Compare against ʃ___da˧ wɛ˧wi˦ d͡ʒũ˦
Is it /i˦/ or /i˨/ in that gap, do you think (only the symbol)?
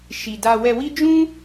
i˨